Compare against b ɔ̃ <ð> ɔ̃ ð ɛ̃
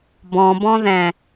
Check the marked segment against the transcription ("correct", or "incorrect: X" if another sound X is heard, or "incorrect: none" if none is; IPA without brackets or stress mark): incorrect: b